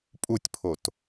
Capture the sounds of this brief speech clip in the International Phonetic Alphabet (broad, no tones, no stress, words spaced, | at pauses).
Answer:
pʼutʲpʰot